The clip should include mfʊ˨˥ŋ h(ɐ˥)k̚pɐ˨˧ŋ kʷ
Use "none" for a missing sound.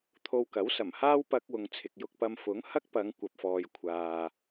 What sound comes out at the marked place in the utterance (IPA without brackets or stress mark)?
ɐ˥